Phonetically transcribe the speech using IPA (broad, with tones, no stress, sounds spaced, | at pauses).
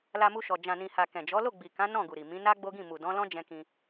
l a˧ m u˧ ʃ ɔ˨ d͡ʒ ã˨ n ĩ˨ h a˨ k ɛ̃˨ d͡ʒ ɔ˨˦ l o˦˨ ɡ͡b i˨ k ã˨˦ n ɔ̃˦˨ ɡ u˨ ɾ i˨ m ĩ˨˦ n a˦ ɡ͡b o˦ ɡ ĩ˦˨ m u˨ d ɔ̃˨˦ l ɔ̃˦ d͡ʒ ɛ̃˧ k ĩ˧